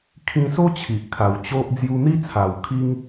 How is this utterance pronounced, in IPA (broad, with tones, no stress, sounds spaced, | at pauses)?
kʰ ĩ˧ s o˦ t͡ɕʰ i˨ ʔ kʰ a˨˩ w t͡ɕ o˦ ʔ d͡z j u˧ n̪ i˦ t͡sʰ a˨˩ w kʰ i˦ ŋ